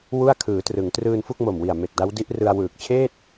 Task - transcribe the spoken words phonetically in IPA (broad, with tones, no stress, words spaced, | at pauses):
wu˥˩a̯kʰɯː˩˦trɯ˩˦ŋ trɯː˧nfu˥˩k̚ mo˨˩mwi˨˩a̯ me˨˩k̚da˦˥wdi˦˥ʔrɯ˧a̯ wɯː˨˩k̚ t͡ɕʰeː˥˩t̚